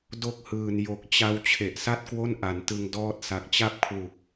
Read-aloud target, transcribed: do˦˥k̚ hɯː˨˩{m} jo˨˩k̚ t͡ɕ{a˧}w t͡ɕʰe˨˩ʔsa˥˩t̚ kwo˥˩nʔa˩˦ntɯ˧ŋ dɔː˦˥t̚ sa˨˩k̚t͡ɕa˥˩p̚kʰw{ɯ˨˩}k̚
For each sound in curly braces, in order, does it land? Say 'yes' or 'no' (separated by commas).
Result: no, yes, no